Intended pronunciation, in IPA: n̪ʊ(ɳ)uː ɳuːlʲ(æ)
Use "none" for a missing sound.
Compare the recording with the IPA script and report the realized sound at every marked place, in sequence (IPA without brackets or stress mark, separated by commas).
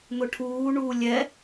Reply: ʈʰ, ɛ